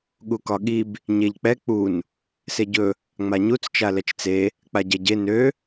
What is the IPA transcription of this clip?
ɠ u k ɒ ɠ i b | ɲ e ʎ k͡p ɛ k͡p u n | s e ɟ ɵ | ŋ͡m a ɲ u t͡s t͡ʃ a l ɛ t͡ʃ t͡s e | k͡p a ɟ ɛ ɟ e n ø

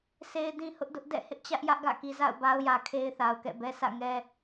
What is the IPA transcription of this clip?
s e˦ ɪ̯ d ĩ˦ h ʊ˦ ʔ d ʊ˦ ʔ d ɛ̰˦˨ h ɪ˦ ʔ t͡ɕ ä˦ ʔ j ä˦ ʔ ɡ ä̰˦˨ k i˨ z a̰˦˨ ʊ̯ b a˦ ʊ̯ j ä˨ kʰ e˦ ɪ̯ θ a˨ ʊ̯ k ɛ̰˦˨ b ɛ˦ s ä̰˦˨ ŋ ɛ˦

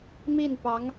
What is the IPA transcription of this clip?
m i˥˩ n p ɑ˧˥ ŋ

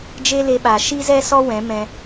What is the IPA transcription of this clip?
d͡ʒ e˦ l e˧ ɓ a˨ ʃ i˦ z ɛ˦ s ɔ˦ w ɛ̃˨˦ m ɛ̃˧

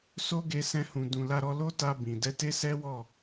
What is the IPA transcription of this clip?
s o˦ ɡ e˧ s ɛ̃˧ h ũ˨ d ũ˨ l a˧ ɾ ɔ˧ l o˦ t a˧ b ĩ˨ d ɛ˧ t e˦ s ɛ˦ w ɔ˦˨

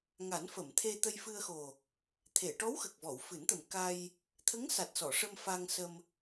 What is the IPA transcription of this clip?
ŋ a˨˩˦ n f ə˨˩˨ m t̪ʰ e˧ t̪ ə˧ j f ɨ˧ ə̯ x o˨˩ | t̪ʰ e˨˩˨ ʈ ɔ˧˥ w x ə˨˩ k̚ v ɔ˨˩˨ w f ɨ˨˩˦ n t̪ ə˨˩ m k a˧ j | t̪ʰ ə˧˥ ŋ s a˨˩ t̚ s ɔ˨˩˨ ʂ ə˧ m f a˧ ŋ s ə˧ m

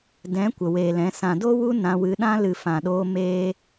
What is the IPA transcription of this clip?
d ɛ̃˨˦ kʷ ə˨ w eː˨ l ɛ̃˨˦ s ã˨ d o˦ w u˦ n ã˧ w ɨ˧ ɗ ã˦ l ɨ˨ f ã˨ ɗ oː˧ m eː˦

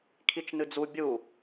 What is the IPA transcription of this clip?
kʰ i t͡ʃ n ɨ d͡z u bʲ u

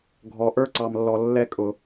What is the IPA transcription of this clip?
ɡʱ ɔ˨ ʔ ə˞˦ ǀ ɑ˨ m lː ɔ˨ lː ɛ˦ kʼ ʊ˨

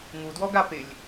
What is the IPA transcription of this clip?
ŋ u d w ɔ ɡ a p ɪ lʲ

